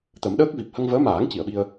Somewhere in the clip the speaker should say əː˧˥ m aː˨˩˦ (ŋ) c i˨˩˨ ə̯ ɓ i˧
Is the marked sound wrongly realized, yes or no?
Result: no